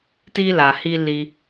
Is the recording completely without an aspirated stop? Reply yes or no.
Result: yes